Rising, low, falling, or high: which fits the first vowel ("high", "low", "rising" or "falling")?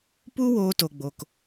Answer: high